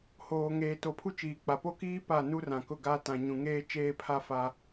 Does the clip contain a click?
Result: no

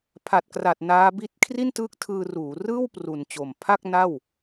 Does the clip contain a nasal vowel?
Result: no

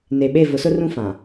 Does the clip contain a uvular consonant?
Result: no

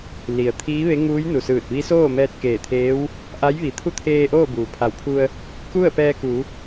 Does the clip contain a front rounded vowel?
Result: no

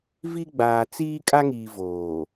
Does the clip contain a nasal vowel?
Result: no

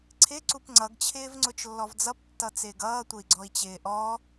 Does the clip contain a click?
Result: yes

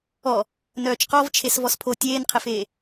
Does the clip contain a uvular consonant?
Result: yes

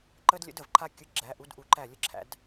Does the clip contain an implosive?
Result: no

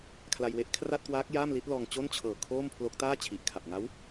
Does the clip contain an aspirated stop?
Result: yes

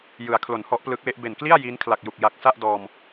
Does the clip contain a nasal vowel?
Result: no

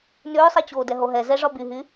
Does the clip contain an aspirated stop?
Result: no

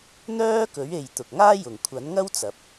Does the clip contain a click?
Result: no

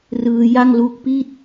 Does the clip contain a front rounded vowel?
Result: no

